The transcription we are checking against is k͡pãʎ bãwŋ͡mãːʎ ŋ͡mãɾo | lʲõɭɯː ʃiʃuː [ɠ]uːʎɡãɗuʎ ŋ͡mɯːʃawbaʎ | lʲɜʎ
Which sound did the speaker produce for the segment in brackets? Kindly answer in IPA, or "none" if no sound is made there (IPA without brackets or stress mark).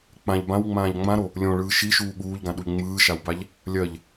ɠ